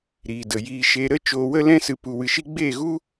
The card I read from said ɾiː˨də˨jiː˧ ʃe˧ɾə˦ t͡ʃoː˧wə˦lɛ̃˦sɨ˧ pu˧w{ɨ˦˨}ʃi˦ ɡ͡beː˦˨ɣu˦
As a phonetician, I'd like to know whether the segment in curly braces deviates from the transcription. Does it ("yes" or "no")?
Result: yes